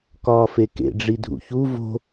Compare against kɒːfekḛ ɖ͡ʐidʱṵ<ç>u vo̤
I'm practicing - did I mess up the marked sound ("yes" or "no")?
no